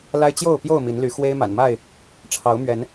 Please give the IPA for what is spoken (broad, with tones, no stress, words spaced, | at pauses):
la˦ɪ̯t͡ɕjo˥˨ʊ̯pjo˥˨ʊ̯ mi˨˦nly˨˦ xwe˦ɪ̯ma̰˨˩nma˥˨ɪ̯ | ʈ͡ʂʰɑ˨˦ʊ̯mɥɛ˨˦n